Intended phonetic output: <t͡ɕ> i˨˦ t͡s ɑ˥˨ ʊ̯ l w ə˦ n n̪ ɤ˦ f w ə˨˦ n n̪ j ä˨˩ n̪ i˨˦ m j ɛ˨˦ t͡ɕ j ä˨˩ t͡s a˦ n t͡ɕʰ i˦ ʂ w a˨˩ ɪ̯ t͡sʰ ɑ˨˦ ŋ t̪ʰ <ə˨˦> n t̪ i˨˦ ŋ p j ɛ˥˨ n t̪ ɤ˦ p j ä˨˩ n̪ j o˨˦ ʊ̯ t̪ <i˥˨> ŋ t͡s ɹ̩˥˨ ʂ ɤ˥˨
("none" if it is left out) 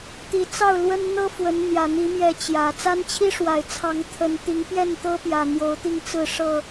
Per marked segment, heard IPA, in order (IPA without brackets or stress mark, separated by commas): t̪, ə˨˦, i˥˨